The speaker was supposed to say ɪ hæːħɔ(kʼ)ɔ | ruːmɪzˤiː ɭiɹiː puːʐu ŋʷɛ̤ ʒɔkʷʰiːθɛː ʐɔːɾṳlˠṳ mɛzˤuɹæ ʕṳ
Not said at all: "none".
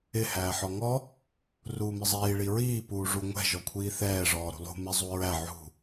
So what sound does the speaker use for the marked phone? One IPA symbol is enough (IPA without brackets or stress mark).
ŋ